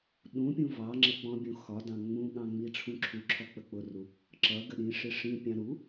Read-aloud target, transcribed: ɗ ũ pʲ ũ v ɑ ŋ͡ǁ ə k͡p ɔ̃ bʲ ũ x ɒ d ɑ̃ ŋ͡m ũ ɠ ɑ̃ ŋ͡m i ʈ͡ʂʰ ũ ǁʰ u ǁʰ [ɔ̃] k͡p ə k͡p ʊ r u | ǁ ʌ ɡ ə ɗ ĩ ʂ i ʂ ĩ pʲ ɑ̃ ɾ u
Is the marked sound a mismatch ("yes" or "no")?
yes